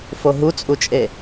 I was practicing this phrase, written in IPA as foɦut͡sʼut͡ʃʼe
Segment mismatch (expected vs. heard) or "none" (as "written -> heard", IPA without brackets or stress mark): none